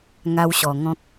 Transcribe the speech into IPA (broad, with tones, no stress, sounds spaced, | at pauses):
ŋ a˦ w ɕ ɔ˨˩ ŋ ɔ̃˦ k̚